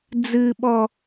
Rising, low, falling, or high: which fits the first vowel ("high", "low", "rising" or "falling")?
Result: low